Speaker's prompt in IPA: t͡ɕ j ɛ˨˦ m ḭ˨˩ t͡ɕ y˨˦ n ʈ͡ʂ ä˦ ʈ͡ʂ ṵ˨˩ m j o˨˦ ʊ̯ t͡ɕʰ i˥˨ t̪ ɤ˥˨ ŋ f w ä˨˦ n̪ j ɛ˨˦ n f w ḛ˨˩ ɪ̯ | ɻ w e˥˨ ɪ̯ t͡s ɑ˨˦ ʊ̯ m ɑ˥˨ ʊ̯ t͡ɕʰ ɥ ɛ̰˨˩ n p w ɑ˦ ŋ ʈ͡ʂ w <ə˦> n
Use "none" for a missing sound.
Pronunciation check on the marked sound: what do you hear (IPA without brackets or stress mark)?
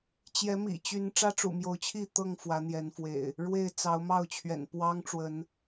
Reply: ə˨˦